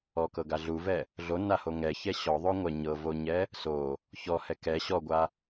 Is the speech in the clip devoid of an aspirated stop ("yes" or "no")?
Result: yes